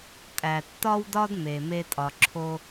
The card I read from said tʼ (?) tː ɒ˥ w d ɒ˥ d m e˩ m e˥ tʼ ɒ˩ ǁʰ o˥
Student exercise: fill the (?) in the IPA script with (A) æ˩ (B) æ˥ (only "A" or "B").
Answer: A